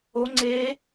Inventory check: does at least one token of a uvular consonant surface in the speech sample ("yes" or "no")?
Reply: no